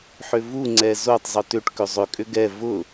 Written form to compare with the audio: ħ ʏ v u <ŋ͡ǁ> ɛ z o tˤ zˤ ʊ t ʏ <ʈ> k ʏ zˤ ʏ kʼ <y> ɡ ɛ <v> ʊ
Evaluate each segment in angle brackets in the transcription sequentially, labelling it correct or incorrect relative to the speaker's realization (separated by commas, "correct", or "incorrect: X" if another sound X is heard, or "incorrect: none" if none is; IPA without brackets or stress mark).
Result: incorrect: ŋ͡ǀ, correct, incorrect: ʏ, correct